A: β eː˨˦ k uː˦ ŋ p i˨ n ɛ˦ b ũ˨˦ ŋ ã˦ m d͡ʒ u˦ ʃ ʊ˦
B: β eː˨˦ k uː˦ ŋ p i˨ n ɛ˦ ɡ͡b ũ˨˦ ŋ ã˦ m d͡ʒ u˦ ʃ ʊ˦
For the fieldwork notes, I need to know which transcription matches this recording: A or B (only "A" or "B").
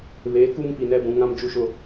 A